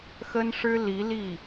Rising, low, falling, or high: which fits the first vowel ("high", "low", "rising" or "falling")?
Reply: high